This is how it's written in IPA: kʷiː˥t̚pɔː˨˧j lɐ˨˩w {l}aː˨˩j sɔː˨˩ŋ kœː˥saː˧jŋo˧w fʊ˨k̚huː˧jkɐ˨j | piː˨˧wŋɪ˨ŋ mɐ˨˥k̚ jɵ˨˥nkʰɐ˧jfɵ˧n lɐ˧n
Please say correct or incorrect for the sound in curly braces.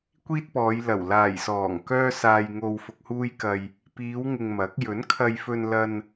correct